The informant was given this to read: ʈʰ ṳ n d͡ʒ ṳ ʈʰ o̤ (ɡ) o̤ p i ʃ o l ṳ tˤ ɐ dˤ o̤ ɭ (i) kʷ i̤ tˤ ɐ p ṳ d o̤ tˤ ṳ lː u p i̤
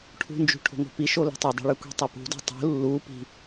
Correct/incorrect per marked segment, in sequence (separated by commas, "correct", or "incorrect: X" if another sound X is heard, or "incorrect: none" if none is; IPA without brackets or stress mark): incorrect: ŋ, incorrect: ɨ